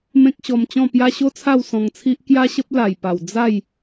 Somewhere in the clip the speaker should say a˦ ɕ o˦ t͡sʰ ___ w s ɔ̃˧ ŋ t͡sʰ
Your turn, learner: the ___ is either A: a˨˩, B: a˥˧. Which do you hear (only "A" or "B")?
B